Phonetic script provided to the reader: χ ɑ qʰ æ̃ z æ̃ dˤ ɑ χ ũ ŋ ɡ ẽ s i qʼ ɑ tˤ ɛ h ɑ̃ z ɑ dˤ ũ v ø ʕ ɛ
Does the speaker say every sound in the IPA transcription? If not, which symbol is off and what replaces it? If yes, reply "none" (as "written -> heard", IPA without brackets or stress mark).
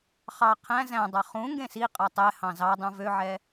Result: none